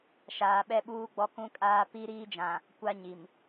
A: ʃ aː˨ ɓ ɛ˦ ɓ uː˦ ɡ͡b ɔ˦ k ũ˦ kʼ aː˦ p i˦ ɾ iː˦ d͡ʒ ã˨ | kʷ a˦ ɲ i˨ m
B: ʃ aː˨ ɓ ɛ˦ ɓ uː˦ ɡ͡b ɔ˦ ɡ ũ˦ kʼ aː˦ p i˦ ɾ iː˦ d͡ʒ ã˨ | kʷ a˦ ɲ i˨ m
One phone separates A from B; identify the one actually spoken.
A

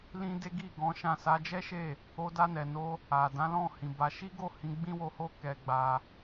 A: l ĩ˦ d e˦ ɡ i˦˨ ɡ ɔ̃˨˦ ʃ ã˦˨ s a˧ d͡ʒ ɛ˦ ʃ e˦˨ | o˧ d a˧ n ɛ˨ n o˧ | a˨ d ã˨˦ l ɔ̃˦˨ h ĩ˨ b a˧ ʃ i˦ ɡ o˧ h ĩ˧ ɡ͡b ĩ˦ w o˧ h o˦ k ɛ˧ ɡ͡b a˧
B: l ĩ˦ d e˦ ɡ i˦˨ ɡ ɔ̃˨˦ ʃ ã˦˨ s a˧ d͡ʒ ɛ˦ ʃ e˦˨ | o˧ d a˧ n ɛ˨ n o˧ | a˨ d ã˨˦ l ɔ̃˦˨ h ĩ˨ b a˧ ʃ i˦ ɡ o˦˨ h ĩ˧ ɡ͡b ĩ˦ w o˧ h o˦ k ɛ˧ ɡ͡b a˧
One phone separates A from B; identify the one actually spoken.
B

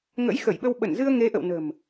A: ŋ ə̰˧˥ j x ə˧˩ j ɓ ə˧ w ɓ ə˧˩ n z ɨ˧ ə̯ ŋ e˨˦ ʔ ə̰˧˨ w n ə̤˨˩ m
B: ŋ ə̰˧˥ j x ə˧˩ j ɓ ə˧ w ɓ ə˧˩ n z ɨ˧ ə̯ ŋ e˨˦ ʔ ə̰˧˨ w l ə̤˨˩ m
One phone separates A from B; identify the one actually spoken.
A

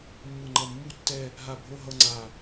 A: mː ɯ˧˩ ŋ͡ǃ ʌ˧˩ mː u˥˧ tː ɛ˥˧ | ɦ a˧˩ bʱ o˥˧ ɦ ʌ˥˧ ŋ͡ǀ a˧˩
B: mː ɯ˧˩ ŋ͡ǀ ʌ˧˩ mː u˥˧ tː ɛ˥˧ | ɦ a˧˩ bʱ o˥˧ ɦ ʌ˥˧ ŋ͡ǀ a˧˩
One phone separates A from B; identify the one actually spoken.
A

